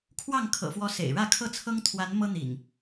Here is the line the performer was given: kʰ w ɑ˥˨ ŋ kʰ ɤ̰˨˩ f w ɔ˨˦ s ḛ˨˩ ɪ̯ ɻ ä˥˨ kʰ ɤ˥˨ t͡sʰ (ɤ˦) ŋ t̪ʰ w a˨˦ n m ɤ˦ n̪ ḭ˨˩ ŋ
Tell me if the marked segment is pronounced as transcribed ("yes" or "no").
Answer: yes